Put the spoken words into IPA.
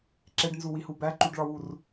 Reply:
ǁ e ɖ n z u w i h u b æ ǃ u ɖ ɭ ɒ w u r

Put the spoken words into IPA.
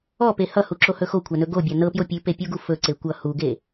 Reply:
ɔ p e h ʌ h u ǁ o h ɵ x o kʷʰ a n ɵ ɡ o bʲ a n ɤ p j o pʲ ʉ p e pʲ u ɡ u f ɵ ǀ e kʷ ʌ h u ɡ e

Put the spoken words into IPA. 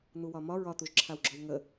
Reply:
n̪ u w ɒ m ɒ ɹ ɒ t̪ u ʒ ǁʰ a w ɡ͡ǁ ɔ w ŋ ə

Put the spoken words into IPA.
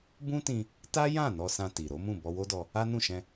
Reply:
b ũ˦ t ĩ˧ | t a˦ j ã˦˨ n ɔ˧ s ã˧ t i˨ ɾ o˨˦ m ũ˦˨ b ɔ˧ w o˦ d ɔ˧ | a˦ n ũ˦˨ ʃ ɛ̃˧

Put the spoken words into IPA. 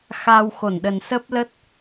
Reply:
x a˧ w x o˧˩ n ɗ ə˨˩ n s ə˦˥ p̚ l ə˦˥ t̚

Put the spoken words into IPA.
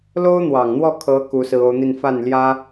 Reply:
l o˥ ʊ̯ n̪ w ɑ˨˩ ŋ n̪ w ɔ˥˩ kʰ ɤ˧˥ k u˧˥ s ɹ̩˧˥ o˧˥ ʊ̯ n̪ i˥˧ n f a˥˩ n l j ä˥

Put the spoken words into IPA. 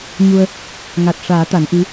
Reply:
ɲ u˧ ə̯ | ŋ a˨˩ t̚ ʂ aː˨˩˦ t̪ a˨˩˦ n ʔ i˧˥

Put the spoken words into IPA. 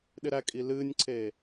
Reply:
ɗ ɪ ɾ æ kʼ i l ɨː nʲ ǀʰ eː

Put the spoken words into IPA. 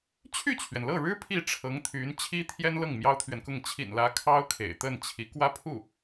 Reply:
t͡ɕʰ y˥˩ t͡ɕʰ ɥ ɛ˩ n l ɤ˥˩ ɻ ɻ̩˥ pʰ i˥˩ ʈ͡ʂʰ ɤ˧˥ ŋ t̪ʰ y˧˥ n t͡ɕʰ i˥ t̪ʰ j ɛ˥ n l ɤ˥˩ ŋ m j ɑ˥ ʊ̯ t̪ʰ ɥ ɛ˨ n k ʊ˥˩ ŋ t͡ɕʰ ḭ˨˩ n l ä˧˥ kʰ ɑ˥ ʊ̯ kʰ ḛ˨˩ ɪ̯ t̪ ə˥˩ n t͡ɕʰ i˧˥ k w ä˥ pʰ u˥˩

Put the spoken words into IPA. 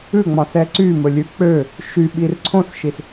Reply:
ʉ ŋ͡m ɑ̃ s ɛ ǀ y m ɵ lʲ ʉ k͡p ø | ʃ y ɓ i r ǀʰ õ s ʃ i s

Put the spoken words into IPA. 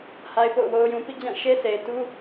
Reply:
h a˦ ɪ̯ p o̰˦˨ ʊ̯ w o˦ ʊ̯ j ũ˦ p ḭ˦˨ d͡ʑ ã˦˨ ʃ e˦ sʰ e˨ ɪ̯ t u˦

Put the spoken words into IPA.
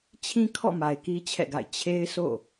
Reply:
t͡ɕʰ ĩ˦ kʰ ɔ̰˦˨ m a˨ ɪ̯ k i˦ t͡ɕʰ ɛ̰˦˨ ɡ a̰˦˨ ɪ̯ t͡ɕʰ e˦ ɪ̯ s o̰˦˨

